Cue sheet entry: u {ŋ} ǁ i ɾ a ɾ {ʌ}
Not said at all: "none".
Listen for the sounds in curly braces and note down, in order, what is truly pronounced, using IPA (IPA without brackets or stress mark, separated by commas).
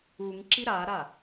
ŋ, a